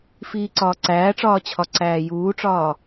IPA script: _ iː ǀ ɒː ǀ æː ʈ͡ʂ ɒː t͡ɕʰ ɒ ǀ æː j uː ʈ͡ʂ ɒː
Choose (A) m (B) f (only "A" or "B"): B